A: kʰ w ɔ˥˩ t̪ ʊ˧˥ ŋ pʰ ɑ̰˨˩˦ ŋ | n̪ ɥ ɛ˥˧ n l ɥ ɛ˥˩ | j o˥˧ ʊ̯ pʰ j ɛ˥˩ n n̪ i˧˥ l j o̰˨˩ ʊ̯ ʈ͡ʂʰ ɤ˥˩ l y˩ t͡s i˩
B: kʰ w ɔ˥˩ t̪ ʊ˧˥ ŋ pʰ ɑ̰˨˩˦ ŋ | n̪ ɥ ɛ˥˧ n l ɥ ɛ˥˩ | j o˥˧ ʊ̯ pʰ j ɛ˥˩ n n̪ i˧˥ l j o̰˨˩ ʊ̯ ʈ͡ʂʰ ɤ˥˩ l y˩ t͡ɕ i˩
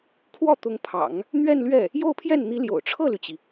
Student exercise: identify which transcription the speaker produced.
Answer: B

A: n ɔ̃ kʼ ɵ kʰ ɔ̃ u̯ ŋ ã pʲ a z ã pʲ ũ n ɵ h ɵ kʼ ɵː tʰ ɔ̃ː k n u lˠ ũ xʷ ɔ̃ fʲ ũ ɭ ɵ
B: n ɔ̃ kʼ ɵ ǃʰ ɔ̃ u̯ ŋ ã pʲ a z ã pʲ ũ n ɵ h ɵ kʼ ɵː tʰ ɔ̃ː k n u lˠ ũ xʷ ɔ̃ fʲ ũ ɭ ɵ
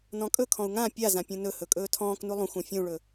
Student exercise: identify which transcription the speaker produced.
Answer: A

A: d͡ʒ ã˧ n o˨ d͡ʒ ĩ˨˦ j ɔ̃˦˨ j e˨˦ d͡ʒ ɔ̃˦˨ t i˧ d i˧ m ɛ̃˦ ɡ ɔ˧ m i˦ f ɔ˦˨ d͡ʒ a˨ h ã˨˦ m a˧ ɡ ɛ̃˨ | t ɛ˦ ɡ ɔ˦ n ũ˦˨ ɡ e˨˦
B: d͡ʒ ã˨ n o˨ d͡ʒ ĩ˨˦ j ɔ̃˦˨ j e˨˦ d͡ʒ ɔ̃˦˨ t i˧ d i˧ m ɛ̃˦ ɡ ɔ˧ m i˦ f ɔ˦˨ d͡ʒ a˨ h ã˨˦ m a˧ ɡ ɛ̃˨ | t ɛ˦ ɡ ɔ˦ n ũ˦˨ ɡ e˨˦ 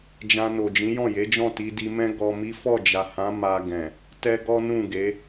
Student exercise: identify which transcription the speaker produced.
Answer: A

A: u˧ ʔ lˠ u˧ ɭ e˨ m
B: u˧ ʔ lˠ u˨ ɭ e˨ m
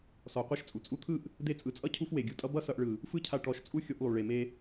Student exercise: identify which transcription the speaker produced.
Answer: B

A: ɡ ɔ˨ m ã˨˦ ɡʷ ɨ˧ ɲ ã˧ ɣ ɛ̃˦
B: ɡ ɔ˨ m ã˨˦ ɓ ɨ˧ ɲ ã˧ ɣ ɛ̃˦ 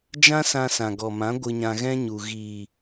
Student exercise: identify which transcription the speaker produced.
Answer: A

